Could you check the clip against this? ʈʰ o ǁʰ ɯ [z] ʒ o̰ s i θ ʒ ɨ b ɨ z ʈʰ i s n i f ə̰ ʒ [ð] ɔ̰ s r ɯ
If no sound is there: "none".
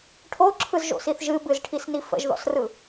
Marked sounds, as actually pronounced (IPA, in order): z, ð

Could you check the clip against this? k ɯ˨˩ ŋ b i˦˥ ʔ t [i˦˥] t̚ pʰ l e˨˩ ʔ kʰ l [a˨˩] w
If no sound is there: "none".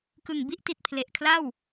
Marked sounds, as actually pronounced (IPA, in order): i˨˩, a˥˩

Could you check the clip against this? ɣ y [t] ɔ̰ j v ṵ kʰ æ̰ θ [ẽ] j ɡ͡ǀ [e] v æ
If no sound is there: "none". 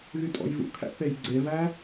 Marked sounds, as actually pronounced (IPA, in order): tʼ, e, e

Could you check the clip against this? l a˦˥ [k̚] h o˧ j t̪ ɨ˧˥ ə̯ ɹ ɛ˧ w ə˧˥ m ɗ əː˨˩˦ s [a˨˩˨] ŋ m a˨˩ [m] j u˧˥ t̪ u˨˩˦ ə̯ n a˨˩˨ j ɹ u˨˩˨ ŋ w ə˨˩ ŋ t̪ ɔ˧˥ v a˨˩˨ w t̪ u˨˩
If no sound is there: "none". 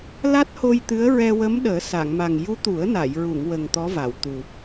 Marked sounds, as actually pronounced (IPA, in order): t̚, a˨˩˨, ŋ

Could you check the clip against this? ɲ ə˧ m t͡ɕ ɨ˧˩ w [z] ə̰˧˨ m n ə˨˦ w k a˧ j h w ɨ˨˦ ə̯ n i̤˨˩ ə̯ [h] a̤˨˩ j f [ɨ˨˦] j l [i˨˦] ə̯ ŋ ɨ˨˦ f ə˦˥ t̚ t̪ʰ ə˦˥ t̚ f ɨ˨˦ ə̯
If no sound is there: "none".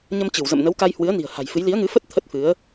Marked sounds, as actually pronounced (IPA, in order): z, h, ɨ˨˦, i˨˦

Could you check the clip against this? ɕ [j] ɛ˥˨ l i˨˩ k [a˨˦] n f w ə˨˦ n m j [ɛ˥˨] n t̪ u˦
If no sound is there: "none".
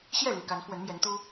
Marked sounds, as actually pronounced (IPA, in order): j, a˨˦, ɛ˨˦

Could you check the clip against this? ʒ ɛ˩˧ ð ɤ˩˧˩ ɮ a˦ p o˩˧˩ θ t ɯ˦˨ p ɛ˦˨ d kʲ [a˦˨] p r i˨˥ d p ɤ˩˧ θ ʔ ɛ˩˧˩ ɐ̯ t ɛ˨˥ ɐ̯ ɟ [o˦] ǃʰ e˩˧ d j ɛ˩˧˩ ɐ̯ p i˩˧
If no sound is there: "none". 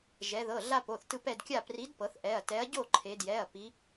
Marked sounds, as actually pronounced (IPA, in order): a˦˨, o˦˨

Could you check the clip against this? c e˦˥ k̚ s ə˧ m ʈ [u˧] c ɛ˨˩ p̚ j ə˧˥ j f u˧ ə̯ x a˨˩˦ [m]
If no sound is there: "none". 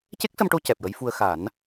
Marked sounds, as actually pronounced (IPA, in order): o˧, n

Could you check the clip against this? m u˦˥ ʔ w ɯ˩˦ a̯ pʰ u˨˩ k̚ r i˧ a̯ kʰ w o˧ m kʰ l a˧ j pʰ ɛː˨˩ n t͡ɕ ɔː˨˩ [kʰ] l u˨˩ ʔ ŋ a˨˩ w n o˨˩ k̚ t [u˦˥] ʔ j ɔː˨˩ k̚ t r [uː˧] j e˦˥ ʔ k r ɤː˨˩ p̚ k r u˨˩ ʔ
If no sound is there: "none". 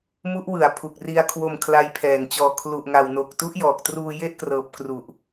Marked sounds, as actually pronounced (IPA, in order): kʰ, u˦˥, uː˧

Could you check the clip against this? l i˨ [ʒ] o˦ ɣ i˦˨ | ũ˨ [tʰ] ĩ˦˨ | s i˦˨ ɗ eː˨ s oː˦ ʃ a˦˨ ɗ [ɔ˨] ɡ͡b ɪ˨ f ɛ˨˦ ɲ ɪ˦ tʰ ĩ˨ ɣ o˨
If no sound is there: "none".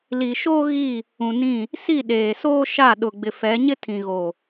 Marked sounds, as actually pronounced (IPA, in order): ʃ, n, ʊ˨

